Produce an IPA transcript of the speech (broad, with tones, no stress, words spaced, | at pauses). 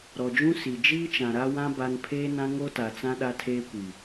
ɾɔ˨d͡ʒũ˦ si˨ d͡ʒiː˦t͡ʃã˨ɾa˦wã˦ ba˦n pʰeː˦nã˦ ŋo˦ta˨t͡sã˦ ɗa˦tʰeː˦kʷi˨